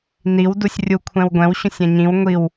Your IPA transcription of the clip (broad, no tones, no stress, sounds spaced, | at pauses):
n i w d u sʲ rʲ u kʷʰ ɛ̃ w ɡʷ ɛ̃ w ɕ ũ sʲ ɛ̃ ɲ ĩ w ŋʷ i w